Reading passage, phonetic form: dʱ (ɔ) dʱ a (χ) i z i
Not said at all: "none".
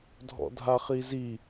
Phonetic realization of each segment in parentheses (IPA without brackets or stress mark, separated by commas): ɔ̰, χ